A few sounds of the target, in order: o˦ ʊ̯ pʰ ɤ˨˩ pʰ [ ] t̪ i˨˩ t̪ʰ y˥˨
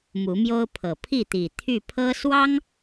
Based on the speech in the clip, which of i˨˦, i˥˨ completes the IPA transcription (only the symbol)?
i˥˨